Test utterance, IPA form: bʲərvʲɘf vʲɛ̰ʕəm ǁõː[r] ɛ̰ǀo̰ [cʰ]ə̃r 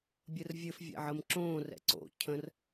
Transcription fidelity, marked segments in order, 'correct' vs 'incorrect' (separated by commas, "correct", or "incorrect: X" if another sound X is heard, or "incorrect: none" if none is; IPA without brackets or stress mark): correct, correct